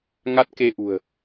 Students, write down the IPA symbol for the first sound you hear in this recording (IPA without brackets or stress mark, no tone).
ŋ